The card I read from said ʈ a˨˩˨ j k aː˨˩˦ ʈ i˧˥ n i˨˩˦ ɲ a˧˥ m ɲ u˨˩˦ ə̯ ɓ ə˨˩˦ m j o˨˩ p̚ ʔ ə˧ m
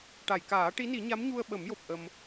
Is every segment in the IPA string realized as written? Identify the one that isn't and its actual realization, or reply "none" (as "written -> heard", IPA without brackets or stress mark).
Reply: u˨˩˦ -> u˧